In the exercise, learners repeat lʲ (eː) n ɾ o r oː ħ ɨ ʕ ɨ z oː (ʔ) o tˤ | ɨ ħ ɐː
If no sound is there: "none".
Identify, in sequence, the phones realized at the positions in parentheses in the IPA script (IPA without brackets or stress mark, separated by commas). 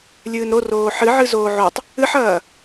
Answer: ɨː, ʕ